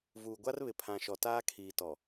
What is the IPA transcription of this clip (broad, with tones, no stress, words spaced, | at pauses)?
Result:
vuː˨ɡʷa˦r βɪ˨pʰã˨ ʃɔ˨taː˦kʰiː˨ tɔ˨